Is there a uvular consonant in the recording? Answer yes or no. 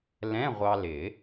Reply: yes